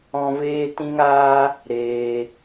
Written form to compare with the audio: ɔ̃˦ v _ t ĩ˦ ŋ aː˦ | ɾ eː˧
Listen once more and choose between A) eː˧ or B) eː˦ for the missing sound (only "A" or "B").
B